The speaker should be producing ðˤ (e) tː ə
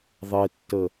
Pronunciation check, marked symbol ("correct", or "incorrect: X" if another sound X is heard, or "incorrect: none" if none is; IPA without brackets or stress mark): correct